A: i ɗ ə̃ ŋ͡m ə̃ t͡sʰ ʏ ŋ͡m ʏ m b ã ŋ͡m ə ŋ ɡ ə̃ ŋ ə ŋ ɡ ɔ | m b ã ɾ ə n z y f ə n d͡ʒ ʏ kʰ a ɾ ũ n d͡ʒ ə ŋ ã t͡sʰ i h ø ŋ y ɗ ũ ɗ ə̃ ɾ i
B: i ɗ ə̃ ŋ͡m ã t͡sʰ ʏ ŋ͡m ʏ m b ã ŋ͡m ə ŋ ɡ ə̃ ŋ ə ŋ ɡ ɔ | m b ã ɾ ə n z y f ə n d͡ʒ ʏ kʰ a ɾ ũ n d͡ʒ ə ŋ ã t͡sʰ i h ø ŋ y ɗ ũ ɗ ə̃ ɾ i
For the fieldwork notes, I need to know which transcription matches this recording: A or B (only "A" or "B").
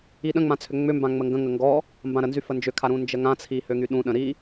B